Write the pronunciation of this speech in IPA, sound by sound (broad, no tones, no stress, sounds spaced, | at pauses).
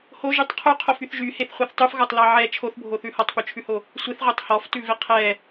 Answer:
h o ʒ y tˤ qʰ ʉ qʰ o f y θ ʒ y h e θ χʷ ɛ θ tˤ ʉ f ɣ ɔ tˤ l ɑ ʕ ɛ t͡ʃʰ o θ bʱ o θ ʉ h ɔ tˤ p ʉ t͡ʃʰ ʉ h o | sʷ e θ ʁʷ e tˤ h ɔ f t ʉ v e qʰ ɛ